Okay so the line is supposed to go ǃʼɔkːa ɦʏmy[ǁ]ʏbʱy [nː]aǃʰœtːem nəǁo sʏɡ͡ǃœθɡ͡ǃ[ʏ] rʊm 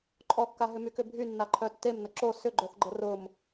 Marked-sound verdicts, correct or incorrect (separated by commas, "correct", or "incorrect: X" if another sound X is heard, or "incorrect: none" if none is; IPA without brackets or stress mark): incorrect: k, correct, incorrect: ə